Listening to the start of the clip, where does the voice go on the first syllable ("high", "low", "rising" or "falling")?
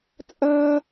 high